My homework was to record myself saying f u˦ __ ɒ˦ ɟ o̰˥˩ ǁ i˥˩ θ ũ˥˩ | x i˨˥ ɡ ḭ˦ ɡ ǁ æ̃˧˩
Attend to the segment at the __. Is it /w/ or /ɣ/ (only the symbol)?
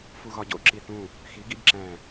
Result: ɣ